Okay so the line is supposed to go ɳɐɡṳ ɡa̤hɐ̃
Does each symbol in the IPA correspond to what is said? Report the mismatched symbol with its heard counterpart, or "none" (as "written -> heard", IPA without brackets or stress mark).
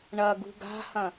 none